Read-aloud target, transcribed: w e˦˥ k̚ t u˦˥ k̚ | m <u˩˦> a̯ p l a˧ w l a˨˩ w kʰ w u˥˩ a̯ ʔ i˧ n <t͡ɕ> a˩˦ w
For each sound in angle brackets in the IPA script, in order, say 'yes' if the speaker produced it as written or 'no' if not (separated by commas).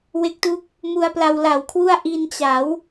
no, yes